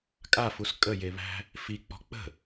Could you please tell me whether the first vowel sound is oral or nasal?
oral